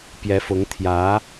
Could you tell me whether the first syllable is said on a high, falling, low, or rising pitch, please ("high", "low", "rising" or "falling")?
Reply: rising